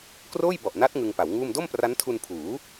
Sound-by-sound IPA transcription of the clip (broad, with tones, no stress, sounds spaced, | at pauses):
k r oː˥˩ j b ɔ˨˩ ʔ n a˦˥ t̚ ŋ ɯ˧ ŋ p a˩˦ w ŋ uː˥˩ m d o˥˩ m p r a˦˥ n tʰ u˧ n pʰ uː˩˦